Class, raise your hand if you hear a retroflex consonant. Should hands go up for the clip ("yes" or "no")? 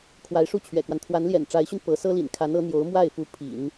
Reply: yes